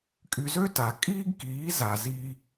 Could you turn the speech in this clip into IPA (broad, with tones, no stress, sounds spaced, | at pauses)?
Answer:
kʼ y˧ z ø˦ t a˨ kʼ iː˦ ɡ k iː˨˦ z a˨ z iː˧